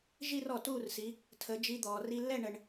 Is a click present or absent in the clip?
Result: absent